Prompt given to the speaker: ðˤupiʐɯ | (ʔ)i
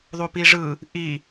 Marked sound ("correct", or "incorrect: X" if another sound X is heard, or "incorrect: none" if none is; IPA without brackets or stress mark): correct